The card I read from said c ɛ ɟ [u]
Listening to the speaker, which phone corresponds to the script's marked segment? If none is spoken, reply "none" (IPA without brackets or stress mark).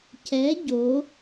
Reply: o